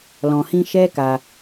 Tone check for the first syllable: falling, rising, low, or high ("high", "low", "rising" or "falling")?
low